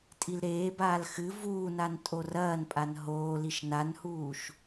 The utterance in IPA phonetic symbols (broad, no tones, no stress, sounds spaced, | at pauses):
tʼ i l ɾ eː b aː l x ɨ v uː n a n tʼ o r ɐː n pʼ a n ɦ oː l i ʃ n a n h uː ʃ